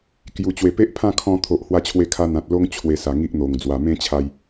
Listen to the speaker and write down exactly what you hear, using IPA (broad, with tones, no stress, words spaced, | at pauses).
kju˨˩t͡ɕwe˨˩pe˦ʔ pʰã˥˧kʰɔ̃˧t̪ʰo˨ʔ hwa˧t͡ɕʰwe˧kʰa˧ n̪ã˨t̚lo˦ŋ t͡ɕʰwe˧sa˨˩ŋi˦ʔn̪o˨˩ŋ d͡zwa˨˩mẽ˦t͡ɕʰa˧j